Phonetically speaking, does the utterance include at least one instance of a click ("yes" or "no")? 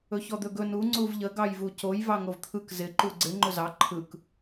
yes